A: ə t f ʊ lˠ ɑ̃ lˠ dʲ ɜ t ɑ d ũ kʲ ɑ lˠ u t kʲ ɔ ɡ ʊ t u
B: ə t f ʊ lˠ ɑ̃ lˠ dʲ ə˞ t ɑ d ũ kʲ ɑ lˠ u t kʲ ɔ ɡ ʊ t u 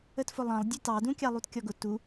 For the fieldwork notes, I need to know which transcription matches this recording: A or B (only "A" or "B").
B